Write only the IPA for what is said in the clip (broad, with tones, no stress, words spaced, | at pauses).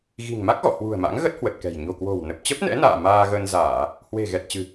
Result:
ɣi̤˨˩ŋma˦˥k̚ɣɔ̰˧˨ hwṳ˨˩ə̯ma̰˧˥ŋɣə˦˥t̚ hwə˨˩t̚kɛ̤˨˩j ɲo̤˨˩kwo̤˨˩w nə˨˩p̚ t͡ɕə˦˥p̚nɛ̰˧˥na̰ː˧˨ maː˧ɣə˧nzaː˧˩˨ | hwe̤˨˩ ɣɛ˨˩t̚t͡ɕɨ̤˨˩